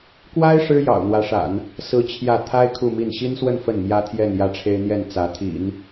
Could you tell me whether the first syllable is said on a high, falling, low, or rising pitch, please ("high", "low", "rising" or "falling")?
high